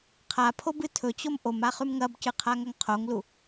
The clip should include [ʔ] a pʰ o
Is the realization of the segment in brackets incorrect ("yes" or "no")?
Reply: yes